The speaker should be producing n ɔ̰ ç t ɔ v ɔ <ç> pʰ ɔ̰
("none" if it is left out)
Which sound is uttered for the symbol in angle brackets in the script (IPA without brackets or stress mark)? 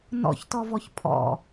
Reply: ç